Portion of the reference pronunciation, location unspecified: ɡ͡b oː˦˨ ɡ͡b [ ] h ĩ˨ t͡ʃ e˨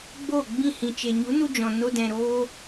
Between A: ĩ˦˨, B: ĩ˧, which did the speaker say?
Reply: A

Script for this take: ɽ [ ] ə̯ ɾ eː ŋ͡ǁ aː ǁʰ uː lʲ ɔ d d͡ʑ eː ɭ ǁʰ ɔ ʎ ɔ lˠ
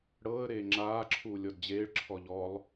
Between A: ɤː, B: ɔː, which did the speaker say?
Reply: A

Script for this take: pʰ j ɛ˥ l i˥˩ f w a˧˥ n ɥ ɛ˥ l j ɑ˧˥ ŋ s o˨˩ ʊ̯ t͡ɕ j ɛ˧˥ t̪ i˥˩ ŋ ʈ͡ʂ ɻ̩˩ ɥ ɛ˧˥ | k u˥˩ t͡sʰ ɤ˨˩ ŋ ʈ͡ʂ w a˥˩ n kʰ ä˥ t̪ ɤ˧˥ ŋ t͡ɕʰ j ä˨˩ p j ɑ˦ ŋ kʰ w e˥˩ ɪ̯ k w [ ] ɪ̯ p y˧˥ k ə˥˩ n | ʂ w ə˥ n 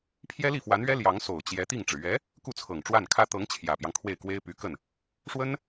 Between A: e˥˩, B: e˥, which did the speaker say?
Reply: B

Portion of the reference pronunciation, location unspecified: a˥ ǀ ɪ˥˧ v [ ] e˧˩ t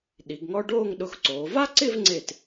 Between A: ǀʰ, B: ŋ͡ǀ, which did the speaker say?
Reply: B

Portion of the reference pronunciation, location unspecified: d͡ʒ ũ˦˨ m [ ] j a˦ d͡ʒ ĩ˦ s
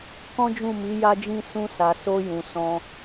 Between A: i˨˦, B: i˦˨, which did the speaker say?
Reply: A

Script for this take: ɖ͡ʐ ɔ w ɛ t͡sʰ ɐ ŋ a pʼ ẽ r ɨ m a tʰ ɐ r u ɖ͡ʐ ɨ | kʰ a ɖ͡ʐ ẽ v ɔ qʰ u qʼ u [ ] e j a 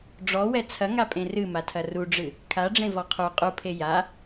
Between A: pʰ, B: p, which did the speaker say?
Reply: A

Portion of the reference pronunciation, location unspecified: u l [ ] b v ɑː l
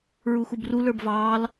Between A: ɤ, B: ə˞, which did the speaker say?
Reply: B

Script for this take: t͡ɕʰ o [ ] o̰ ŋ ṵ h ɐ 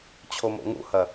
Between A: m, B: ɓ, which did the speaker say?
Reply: A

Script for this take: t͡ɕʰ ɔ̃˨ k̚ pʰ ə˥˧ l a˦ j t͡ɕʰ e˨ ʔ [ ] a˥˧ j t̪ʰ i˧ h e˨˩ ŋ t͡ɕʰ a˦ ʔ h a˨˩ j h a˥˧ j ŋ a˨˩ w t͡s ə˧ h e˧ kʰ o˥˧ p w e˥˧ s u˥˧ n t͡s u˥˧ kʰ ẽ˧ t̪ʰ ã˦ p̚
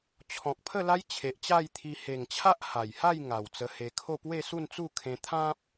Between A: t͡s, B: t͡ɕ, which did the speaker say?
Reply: B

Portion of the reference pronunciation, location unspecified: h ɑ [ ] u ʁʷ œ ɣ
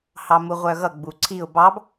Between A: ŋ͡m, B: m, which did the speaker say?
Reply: B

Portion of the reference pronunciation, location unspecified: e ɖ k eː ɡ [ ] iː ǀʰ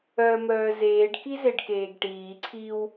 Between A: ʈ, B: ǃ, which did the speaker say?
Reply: A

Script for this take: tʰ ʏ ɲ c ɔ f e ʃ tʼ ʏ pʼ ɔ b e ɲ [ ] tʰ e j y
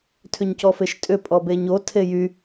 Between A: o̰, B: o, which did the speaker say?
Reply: B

